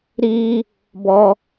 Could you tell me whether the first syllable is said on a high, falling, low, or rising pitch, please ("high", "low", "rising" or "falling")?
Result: high